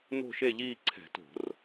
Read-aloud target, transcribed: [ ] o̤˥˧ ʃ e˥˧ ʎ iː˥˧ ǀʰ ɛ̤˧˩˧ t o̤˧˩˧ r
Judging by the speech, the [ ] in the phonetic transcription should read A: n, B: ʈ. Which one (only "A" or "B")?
A